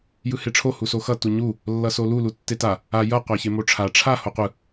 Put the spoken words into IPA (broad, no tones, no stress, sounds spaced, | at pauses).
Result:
j ɯ h e ʈ͡ʂʰ o h u s o x ʌ t u ɲ u | lː ʌ s o l u l u tː e t a | a j ʌ qʷ a ç e m o ʈ͡ʂʰ a ʈ͡ʂʰ a h o qʷ ɯ